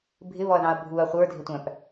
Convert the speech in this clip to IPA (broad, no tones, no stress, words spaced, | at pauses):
bʱɪβɔɐ̯ðɑ̃ɐ̯ bʱuɐ̯ χʷə˞dʱɪtʷæ̃p